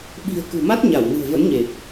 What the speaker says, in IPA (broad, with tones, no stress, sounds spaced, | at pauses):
ɓ i̤˨˩ ə̯ k ṳ˨˩ m a˦˥ t̚ ɲ a˧˩ w n ɨ̤˨˩ ə̯ v ə̰˧˥ n ɲ e˨˩ p̚